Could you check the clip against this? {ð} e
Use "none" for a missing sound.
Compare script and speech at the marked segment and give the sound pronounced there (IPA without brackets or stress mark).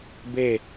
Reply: b